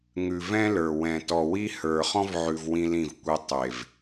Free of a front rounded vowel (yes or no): yes